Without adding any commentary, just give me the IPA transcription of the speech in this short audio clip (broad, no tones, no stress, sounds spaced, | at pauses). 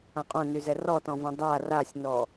ã qʼ õ n y z ɛ r ɔ t ɔ̃ v õ dˤ a r a sʲ n ɔ